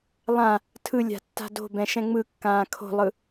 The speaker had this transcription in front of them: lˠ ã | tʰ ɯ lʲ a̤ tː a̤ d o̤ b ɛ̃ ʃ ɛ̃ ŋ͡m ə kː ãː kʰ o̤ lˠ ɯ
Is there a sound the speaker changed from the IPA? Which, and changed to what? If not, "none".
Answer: ə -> ɯ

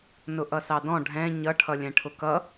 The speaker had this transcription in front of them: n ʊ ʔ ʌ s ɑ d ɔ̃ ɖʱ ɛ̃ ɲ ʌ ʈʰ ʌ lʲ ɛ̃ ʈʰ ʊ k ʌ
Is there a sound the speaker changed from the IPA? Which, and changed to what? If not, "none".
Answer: none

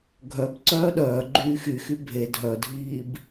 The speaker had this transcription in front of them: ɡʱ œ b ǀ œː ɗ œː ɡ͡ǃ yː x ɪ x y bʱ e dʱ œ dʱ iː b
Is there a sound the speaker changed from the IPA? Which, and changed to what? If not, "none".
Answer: ɪ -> y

